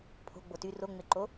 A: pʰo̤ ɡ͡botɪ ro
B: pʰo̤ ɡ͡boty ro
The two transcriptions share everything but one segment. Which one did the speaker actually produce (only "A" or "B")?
B